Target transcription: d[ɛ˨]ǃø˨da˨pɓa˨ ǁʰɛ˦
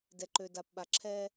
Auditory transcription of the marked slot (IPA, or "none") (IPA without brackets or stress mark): ɛ˨